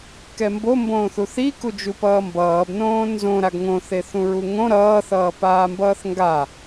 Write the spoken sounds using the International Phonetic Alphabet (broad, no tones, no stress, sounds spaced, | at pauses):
k ɛ m b o m b õː θ u θ i k u d͡ʒ u p ʌː m b ʌː b n õː n z õ ɾ a ɡ ŋ õ θ e θ ũ ɹ u ŋ õ ɾ ʌː θ ʌː p aː m b ʌː θ ŋ ɡ a